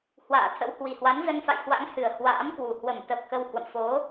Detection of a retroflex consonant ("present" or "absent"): absent